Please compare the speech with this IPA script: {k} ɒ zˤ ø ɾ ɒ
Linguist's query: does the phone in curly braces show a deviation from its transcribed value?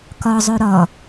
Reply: no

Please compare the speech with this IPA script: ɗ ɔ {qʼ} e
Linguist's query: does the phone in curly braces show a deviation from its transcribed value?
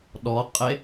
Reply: no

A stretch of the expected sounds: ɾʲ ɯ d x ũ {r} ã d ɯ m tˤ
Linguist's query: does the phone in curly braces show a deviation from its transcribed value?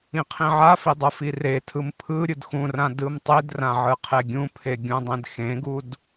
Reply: no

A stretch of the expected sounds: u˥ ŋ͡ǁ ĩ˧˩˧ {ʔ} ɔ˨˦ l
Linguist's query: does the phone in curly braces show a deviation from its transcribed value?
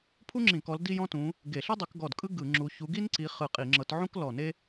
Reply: yes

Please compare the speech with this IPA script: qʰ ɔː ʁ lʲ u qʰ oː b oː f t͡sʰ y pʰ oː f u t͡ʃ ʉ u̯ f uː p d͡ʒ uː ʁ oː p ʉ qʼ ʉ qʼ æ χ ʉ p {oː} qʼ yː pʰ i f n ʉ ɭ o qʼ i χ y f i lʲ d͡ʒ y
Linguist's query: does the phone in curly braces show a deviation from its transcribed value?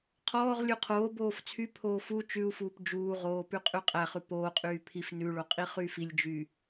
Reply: no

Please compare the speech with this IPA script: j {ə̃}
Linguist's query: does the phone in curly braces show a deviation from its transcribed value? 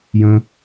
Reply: no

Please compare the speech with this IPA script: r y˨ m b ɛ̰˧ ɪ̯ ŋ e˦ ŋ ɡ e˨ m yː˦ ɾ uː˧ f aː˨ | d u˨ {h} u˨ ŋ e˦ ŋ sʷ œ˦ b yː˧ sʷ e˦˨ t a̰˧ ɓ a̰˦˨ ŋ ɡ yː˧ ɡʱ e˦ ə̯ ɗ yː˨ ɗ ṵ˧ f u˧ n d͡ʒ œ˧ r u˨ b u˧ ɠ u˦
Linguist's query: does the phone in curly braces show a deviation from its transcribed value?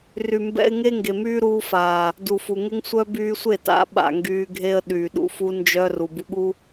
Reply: yes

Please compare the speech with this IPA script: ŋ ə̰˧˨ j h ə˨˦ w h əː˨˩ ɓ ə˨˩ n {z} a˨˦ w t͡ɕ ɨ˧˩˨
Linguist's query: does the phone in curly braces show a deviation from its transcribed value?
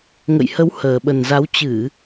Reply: no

